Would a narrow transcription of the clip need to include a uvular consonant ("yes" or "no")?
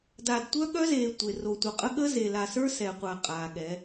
yes